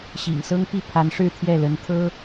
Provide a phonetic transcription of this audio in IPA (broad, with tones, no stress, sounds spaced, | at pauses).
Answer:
ɕ ḭ˨˩ ŋ s ɤ˥ ŋ p i˥˩ pʰ a˧˥ n ʂ ɻ̩˥˧ t̪ʰ j ɛ˥˩ l ə˧˥ n t̪ʰ ɤ˥